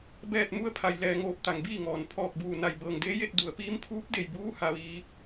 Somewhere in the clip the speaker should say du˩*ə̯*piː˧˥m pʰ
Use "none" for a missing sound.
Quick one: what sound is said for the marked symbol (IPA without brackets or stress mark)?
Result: ə̯